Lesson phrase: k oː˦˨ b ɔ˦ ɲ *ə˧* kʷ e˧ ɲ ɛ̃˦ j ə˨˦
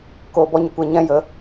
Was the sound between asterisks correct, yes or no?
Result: yes